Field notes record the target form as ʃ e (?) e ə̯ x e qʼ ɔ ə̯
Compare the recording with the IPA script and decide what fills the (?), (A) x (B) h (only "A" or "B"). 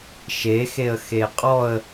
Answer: A